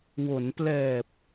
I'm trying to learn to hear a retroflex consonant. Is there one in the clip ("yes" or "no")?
no